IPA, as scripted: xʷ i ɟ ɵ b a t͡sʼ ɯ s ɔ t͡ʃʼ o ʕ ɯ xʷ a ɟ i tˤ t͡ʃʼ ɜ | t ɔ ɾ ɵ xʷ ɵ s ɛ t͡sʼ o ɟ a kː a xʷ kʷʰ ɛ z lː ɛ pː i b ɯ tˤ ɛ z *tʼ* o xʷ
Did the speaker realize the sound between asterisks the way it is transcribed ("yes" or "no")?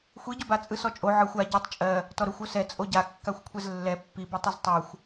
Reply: no